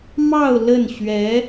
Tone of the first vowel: falling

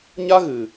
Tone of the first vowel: high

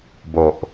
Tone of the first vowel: low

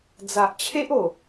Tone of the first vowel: low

